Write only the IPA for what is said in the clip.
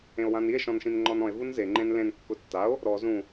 ẽ o̯ w ã n i e̯ ʃ ɔ̃ n ʃ ĩ n ŋ͡ǃ ɔ n ɔ̃ e̯ v u n z e ŋ͡ǃ ẽ n l ẽ n kː ʊ tː a o̯ | ɾ ɔ z ũ

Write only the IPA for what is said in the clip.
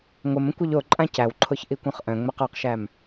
ŋʷ ə m ə̃ kʷ ɯ ʎ o ǃʼ ã c æ w ǃʰ o ç ʔ i kʷ œ̃ χ ʔ œ̃ ŋ͡m ɛ q ɔ q ʃ æ m

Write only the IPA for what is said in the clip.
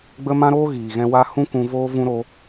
ɡ͡b ə˦ m ã˦ ɾ oː˦ ɣ iː˨ ɣ ɛ̃˧ w a˦ h ũ˦ k ũ˧ v oː˦ v ũ˦ ɾ o˦

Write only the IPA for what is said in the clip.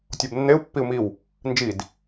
tʲ o b nː e u̯ pː i u̯ m i w | n d͡ʒ i d

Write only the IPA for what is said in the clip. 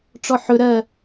ʈ͡ʂ ɔ ħ ɵ ɾ ɜ

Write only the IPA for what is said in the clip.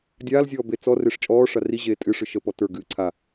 dʲ aː l zʲ ɔː b e t͡s ɔ r e ʂ t͡ʃʼ ɔː ʂ a r i ʑ eː tʼ ɨ ʂ ɨ ʃ ə p ɔ t ə˞ ɡ ɨː ǀʰ a

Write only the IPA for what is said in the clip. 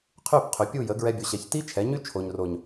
qʰ y˦˨ p qʰ y˨ pʲ u˦˨ j ə˨˦ ɡ ɹ ɛ˧ bʲ o˨ ɕ ɛ˨ ç t i˦ t͡ʃʰ ɛ˨˦ ɲ y˦ t͡ʃʰ o˨ ɲ r o˨ ɲ

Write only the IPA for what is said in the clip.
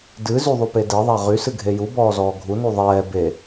d ɨ z y ðˤ u p e d e ðˤ a ʁ y s ɨ ɡʱ e j u b ɔː z ɔː ɡʱ u n u ðˤ ɛː b e

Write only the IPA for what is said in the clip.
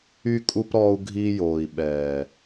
y˧ kʼ u˧ p ɾ ɔː˧ u̯ ɡʱ iː˧ j oː˨ i̯ ɓ ɛː˨

